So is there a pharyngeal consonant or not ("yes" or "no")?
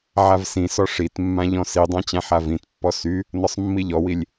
yes